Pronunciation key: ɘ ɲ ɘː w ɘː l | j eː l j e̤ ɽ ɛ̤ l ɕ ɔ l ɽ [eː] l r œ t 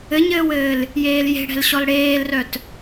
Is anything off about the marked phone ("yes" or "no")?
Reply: no